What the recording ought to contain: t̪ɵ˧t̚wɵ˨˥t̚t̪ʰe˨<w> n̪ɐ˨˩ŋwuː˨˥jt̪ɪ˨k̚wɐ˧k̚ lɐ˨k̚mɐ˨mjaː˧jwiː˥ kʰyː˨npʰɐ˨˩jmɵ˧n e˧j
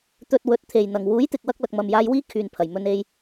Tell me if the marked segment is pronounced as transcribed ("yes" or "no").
no